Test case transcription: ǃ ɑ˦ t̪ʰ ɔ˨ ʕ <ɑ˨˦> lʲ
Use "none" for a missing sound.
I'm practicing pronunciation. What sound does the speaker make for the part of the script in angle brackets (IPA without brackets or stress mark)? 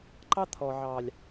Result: ɑ˨